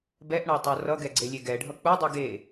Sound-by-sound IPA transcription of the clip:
bɛʔɳatˤo rʌɡɛɡ͡ǀelʲe ɡɛɖʱʌ k͡pudˤi ɡe

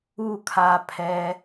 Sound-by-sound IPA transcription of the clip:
u˦˨kʰa˧ pʰɛ˧

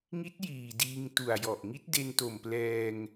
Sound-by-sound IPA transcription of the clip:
ŋi˦˥t̚ jiː˨˩ diː˧ŋtu˨˩a̯jɔ˨˩ʔ ŋi˦˥t̚de˧nto˨˩mplɛː˧ŋ

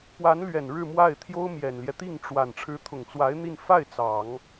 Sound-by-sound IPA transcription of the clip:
pwa˧˥nlɥɛ˨˩n ɻɻ̩˥˧mwa˥˩ɪ̯ t̪ʰjo˥ʊ̯mjɛ˨˩nljɛ˦ t̪i˥˩ŋʈ͡ʂwa˨˩n ʈ͡ʂʰɻ̩˧˥t̪ʰʊ˨˩ŋt͡swa˧˥ɪ̯ n̪i˥˧n fa˥˩ɪ̯ t͡sɑ˨˩˦ŋ

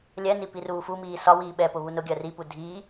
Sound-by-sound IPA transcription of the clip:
lʲɛni piruːfumiː sɒwiː ɓɛpʊ βunʊɡʲɜ ripu dʱiː

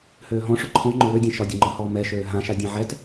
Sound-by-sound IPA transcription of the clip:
høːɦɔ̃ ʂʊǃʰɔ̃ ŋ͡ǃʊwødʲã ʃɒdʲʊŋ͡ǃɒhɔː mɛʃøː ɦãʃa dʲãʕɛt

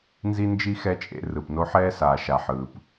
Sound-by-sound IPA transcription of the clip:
nzi˦nd͡ʒi˦ xɛ˥t͡ʃʼḛ˦ rɯ˩pno˦ħɛː˥saː˨ ʃa˨ħɯː˩p

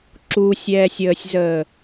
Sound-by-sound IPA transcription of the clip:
ǁusʲɛːsʲəːsʲzəː

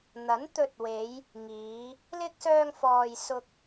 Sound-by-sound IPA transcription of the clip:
n̪ɐ˨˥nt̪ɵ˧t̚we˨˧j | ŋiː˨˧ | lɪ˥k̚ sœː˧ŋfɔː˨j sʊ˧k̚

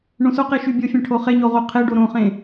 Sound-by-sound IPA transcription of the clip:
ɳõsoqe ʃybʲofʲɛ̃ ʈʰoχeɲo ʁoqʰeɖo ɾõχẽ

